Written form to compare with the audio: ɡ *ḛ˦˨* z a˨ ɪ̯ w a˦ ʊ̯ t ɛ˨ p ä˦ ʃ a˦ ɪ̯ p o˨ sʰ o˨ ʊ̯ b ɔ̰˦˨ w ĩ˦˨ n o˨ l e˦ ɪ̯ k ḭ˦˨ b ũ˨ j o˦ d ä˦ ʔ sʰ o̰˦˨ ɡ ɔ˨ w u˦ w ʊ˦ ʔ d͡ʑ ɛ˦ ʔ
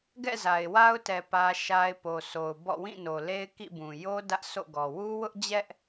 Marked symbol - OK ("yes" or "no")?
no